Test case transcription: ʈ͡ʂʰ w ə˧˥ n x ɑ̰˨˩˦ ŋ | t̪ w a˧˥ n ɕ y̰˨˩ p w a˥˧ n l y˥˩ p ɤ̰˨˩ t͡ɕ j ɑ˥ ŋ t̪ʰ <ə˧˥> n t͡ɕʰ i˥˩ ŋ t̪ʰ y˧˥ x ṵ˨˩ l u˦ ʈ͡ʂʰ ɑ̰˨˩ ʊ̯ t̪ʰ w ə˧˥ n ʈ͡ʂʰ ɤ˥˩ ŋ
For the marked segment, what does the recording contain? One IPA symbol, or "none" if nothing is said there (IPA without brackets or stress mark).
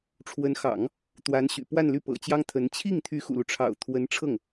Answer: ə˧˥